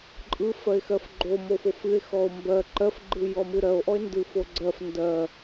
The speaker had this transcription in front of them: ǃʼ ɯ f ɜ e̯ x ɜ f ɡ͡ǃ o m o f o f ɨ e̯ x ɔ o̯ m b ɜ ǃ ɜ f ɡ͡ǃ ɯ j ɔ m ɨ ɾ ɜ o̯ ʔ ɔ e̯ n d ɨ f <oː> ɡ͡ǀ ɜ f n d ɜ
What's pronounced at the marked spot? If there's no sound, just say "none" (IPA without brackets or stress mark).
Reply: o